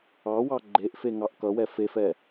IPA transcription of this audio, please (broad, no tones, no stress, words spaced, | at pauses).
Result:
ɑwɑ ɡ͡ǃeʔfeŋɑʔ kʌwɛ fefɛ